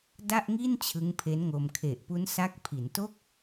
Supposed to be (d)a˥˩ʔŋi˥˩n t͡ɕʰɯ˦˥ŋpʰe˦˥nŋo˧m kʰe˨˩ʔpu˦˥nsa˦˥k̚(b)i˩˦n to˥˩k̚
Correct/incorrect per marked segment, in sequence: correct, incorrect

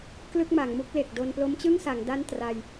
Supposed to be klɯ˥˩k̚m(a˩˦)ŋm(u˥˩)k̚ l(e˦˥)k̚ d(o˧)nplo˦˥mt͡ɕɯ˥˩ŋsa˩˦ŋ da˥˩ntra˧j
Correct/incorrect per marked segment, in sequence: correct, correct, incorrect, correct

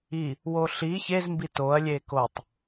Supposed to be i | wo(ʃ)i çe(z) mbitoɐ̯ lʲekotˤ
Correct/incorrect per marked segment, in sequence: incorrect, correct

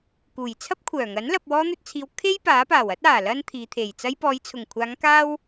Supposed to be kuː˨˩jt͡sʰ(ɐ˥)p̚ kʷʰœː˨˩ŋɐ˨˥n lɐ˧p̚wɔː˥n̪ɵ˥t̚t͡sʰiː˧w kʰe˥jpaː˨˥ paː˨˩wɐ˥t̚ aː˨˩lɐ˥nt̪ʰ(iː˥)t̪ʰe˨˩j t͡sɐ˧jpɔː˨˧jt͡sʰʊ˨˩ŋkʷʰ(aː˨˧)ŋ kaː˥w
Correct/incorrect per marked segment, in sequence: correct, incorrect, correct

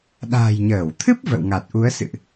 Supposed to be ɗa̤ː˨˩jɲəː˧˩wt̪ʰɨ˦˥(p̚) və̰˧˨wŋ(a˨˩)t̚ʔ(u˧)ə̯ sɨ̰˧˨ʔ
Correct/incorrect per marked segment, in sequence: correct, correct, incorrect

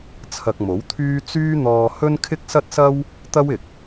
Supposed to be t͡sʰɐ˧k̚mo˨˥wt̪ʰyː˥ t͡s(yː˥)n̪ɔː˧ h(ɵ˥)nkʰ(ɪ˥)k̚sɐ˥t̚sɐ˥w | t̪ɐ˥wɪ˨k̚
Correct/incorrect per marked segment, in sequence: correct, correct, correct

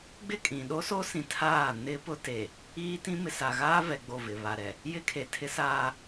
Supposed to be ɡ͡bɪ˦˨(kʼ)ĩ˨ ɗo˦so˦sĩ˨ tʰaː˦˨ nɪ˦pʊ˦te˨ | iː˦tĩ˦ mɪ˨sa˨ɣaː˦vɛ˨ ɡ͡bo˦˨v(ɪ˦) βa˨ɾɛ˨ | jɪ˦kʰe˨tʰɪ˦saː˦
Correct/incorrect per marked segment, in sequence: correct, incorrect

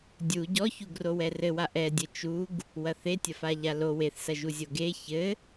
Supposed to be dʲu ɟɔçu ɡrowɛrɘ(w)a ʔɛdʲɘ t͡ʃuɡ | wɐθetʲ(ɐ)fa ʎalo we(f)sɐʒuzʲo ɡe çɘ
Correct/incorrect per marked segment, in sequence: correct, correct, incorrect

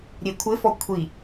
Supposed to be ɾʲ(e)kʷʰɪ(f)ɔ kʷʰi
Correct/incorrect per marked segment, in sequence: correct, correct

